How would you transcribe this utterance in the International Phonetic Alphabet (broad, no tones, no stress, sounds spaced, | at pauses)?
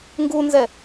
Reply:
ŋ ɡ u n z ɛ